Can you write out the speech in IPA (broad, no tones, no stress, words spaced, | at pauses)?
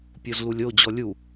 pʲozlulʲo d͡ʑɔlʲu